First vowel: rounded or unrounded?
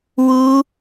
rounded